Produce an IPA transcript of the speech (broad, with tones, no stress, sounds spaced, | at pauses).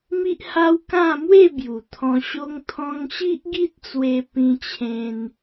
m i˦ ʔ h a˦ w k ã˥˧ m w e˥˧ b j u˨˩ t̪ʰ ɔ̃˧ ɕ o˦ ŋ t̪ʰ ɔ̃˧ ŋ ɕ i˦ ʔ ɡ i˦ t̚ t͡s w e˧ p ĩ˧ t͡ɕʰ ẽ˧ n